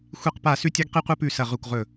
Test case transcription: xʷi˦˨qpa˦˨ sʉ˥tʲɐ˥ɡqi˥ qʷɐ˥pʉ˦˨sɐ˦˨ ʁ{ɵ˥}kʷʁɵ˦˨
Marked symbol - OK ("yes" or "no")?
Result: no